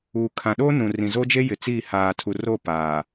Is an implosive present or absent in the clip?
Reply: present